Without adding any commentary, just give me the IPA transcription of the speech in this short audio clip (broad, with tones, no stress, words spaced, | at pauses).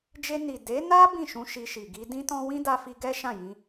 d͡ʒe˧ ni˨ de˨˦na˦ bĩ˦˨ʃũ˧ ʃi˧ʃi˨ ɡi˧dĩ˦tɔ̃˦ wĩ˦da˧fi˧ ɡɛ˦ ʃã˦˨jĩ˧